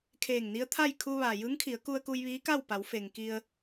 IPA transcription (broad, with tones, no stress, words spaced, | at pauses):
kʰeː˧˩ŋni˧˥ə̯t̪ʰa˥˨j kʰu˧ʋa˩ jɯː˧˥ŋkʰi˩˧ə̯ku˧ə̯ku˧j ʋiː˧˥ka˥˨w pa˩˧wfe˩ŋki˧ə̯